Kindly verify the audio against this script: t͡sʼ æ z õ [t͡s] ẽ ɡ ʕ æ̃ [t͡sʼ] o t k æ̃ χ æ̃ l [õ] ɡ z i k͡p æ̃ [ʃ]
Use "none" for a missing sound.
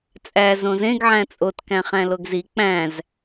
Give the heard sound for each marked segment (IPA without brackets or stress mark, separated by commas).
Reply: z, t͡sʼ, o, z